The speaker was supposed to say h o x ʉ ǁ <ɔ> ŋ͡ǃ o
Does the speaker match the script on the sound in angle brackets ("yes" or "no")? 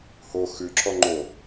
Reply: yes